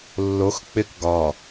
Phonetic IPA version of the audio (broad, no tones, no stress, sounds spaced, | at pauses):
lː o x k͡p ɪ k ɡ ɒ